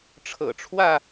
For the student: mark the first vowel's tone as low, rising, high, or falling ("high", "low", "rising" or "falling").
low